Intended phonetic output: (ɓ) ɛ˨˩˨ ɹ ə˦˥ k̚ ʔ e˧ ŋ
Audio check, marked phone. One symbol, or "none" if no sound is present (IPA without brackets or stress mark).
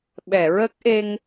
ɓ